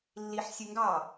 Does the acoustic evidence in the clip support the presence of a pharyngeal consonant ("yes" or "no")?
yes